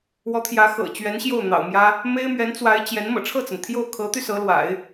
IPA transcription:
w ɔ˧˥ t̪ʰ j ä˧˥ x ɤ̰˨˩ t͡ɕ ɥ ɛ˧˥ n ɕ j o˥˩ ʊ̯ n̪ ɑ̰˨˩ ʊ̯ m j ä˥ | m e˥ ɪ̯ m ɥ ɛ˧˥ n t͡s w a˧˥ ɪ̯ t͡ɕ j ɛ˧˥ n m ɤ̰˨˩ ʈ͡ʂʰ ɤ˥˩ t͡s ə˩ n t̪ʰ j o˥˩ ʊ̯ kʰ ɤ˧˥ t̪ y˧ s ɤ˧˥ l w a̰˨˩˦ ɪ̯

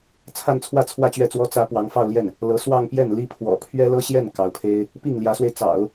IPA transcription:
t͡sʰ a˥˧ n t͡sʰ w ä˥˧ t͡sʰ w ä˥˧ t͡ɕ ɥ ɛ˥˩ t͡s w ɔ˥ t͡s ä˧˥ p w ɑ˧˥ ŋ f ɑ˥˧ ʊ̯ l j ɛ˥˩ n | l ɤ˧˥ s w ɑ˥˧ ŋ p j ɛ˥˩ n l i˥ pʰ w ɔ̰˨˩ pʰ ɥ ɛ˥ l ɤ˥ ɕ j ɛ˥˩ n k ɑ˧˥ ʊ̯ pʰ e˥ ɪ̯ | p i˥˩ ŋ l j ä˧˥ s w e˧ ɪ̯ t͡s ɑ̰˨˩˦ ʊ̯

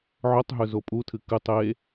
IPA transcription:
ʕ ɵ tˤ ɦ ɵ z o pʼ u tʰ ɨ k ɨ tˤ e

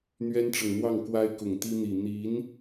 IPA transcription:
n̪ ɥ ɛ˥ n ʈ͡ʂ ɤ˨ ŋ n̪ w ɑ˥˩ ŋ k w a˥ ɪ̯ k ʊ˨˩ ŋ t̪ i˥ n̪ i˨˩ n̪ i˧˥ n

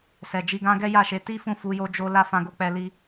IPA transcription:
s ɛ˨ d͡ʒ i˧ ɡ ã˦ ɡ ɛ˦ j a˦˨ ʃ e˨˦ t i˦ f ũ˦˨ f u˧ j o˦ d͡ʒ o˦ l a˦ f ã˧ ɡ o˧ k͡p ɛ˧ l i˦

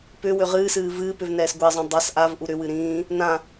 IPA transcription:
p ʏ w ʏ ʁ ɨː s ɨː v ɨː p ʏ v n ɛː s ɡʷ ɛ zˤ õ dˤ a s ʔ a v ʔ u ɾ ʏ w ɨ ɾ ĩː | n ã

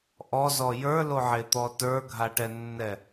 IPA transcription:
ʔ ɔ z ɔ j ə˞ l o ʕ e t̪ ɔ t ə˞ ɡʱ a ʈ ɛ nː ɛ

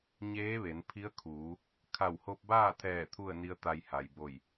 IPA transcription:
ɲ eː˧˥ ʋ e˩˧ n pʰ i˧˥ ə̯ kʰ uː˩˧ | kʰ a˧˩ w h o˧ p̚ b aː˥˨ t̪ʰ ɛː˧˩ t̪ʰ u˥˨ ə̯ n i˧˥ ə̯ t̪ a˧ j h a˩ j b o˧˩ j

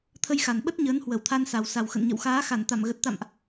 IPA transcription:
t̪ʰ ə˧ j x a˨˩ n ɓ ə˦˥ t̚ ɲ əː˨˦ n h w ə˧˩ w t̪ʰ a˧ n s a˨˩ w s a˨˩ w x ə̰˧˨ n ɲ ə̰˧˨ w x aː˨˦ x a˧˩ n t̪ a˧˩ m ɣ ə˨˩ t̚ t̪ a̰˧˨ m ʔ

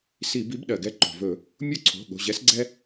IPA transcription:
s i˧˩˧ b i˨˥ b ɗ ɜ˩ ɡ ɛ˨˥ ǃ o̤˩ v ɵ˧˩˧ | mʲ o˦ ǀʰ o̤˩˧˩ ɠ o̤˩˧˩ ʑ ɛ˨˥ s ɡ͡ǀ ɛ˦

